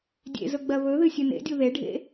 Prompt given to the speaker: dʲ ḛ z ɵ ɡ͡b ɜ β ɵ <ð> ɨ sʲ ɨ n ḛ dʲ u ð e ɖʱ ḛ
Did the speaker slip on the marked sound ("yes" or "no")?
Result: no